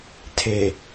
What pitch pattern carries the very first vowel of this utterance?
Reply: low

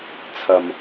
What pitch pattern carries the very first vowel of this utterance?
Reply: low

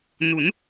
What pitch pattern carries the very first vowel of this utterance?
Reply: rising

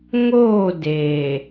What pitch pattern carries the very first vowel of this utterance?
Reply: falling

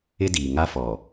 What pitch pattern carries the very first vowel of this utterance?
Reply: high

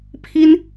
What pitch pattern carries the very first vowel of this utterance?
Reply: high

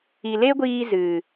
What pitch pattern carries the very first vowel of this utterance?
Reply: low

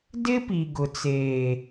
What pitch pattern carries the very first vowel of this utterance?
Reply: high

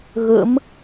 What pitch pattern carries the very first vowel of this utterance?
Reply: rising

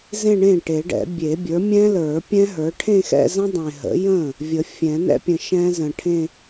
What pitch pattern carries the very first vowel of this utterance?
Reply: falling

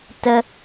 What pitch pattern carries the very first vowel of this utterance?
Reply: high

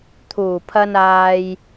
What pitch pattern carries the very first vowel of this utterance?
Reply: low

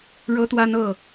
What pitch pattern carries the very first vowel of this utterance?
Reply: high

